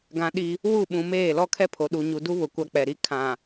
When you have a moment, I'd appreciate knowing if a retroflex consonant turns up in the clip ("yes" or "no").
no